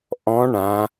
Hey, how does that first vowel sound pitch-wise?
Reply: rising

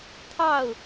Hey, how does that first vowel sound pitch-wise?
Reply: falling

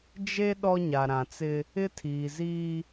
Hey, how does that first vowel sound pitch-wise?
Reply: high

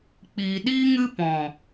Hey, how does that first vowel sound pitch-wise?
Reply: low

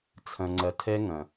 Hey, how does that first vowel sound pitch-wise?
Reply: low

